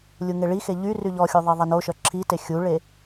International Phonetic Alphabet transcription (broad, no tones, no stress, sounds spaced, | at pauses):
lʲ u ŋ e ɭ i x e ʎ y r y ʎ ɔ xʲ u ðˤ i ðˤ ɛ n o ʃ œ ǁʰ i t e xʲ u ɭ e